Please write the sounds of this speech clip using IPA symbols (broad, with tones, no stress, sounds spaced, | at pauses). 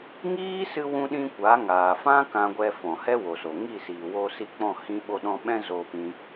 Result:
ŋ iː˦ s ɨ˧ w ũ˧ ɗ ĩ˧ kʷ a˨˦ ŋ aː˨ f ã˦ k ã˧ ɡʷ ɛ˧ f ɔ̃˨ h ɛ˦ w o˨ s o˨ ŋ i˦˨ s iː˨ w o˧ s i˧ k͡p ɔ̃˦˨ h ĩ˧ ɓ o˧ ɗ ɔ̃˧ ɓ ɛ̃˦ z o˧ p ĩ˧